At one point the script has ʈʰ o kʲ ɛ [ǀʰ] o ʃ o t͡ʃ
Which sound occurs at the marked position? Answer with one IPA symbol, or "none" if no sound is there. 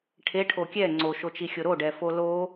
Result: ŋ͡ǀ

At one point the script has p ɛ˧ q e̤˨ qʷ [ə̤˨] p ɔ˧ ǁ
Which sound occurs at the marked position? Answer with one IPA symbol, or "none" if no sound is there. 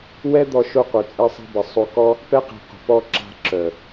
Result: ə̤˨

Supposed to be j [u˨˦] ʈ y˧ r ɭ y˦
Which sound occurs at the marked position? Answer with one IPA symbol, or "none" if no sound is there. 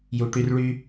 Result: u˨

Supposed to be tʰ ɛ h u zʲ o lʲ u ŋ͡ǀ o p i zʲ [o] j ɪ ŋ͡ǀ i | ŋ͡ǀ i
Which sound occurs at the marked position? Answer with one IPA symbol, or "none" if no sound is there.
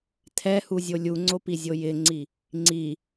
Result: o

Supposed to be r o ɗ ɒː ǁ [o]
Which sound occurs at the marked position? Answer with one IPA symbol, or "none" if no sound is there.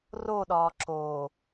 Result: oː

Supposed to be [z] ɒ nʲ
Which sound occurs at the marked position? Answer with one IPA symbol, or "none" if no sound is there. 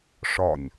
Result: ʂ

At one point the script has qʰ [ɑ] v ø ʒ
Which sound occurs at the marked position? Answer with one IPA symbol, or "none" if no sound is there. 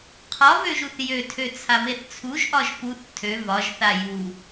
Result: ɒ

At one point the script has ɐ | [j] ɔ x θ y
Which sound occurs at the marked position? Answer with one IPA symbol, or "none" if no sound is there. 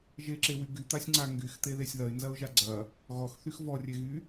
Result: ɣ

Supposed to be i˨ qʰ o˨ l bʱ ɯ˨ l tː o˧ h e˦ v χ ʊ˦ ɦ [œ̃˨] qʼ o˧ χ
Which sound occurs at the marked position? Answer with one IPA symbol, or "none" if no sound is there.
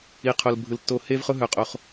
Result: œ˨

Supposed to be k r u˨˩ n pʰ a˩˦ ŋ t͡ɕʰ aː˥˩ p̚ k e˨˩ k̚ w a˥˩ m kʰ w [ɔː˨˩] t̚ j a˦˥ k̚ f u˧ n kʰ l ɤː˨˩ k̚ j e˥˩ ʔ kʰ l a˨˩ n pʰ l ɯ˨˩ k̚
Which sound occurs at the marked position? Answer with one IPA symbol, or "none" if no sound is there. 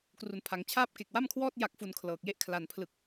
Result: ɔː˥˩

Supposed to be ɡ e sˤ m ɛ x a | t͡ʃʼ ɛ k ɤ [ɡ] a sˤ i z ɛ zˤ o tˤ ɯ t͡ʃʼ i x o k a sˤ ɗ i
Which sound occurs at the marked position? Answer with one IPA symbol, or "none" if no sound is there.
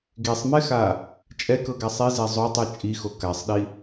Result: ɡ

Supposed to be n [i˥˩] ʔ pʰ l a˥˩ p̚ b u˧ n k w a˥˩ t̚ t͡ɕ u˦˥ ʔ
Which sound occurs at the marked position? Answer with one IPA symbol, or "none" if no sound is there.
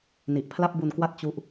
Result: i˨˩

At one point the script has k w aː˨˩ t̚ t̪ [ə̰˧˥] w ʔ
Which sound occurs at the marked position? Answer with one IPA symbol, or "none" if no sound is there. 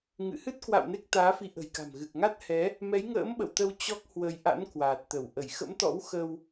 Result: ə˧˩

